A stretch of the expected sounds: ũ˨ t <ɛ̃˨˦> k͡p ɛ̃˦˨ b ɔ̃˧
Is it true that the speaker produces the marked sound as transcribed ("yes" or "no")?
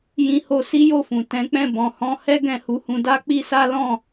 yes